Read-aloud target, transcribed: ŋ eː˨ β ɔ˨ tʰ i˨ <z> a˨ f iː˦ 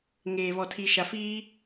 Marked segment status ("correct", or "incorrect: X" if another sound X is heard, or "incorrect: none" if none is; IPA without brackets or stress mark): incorrect: ʃ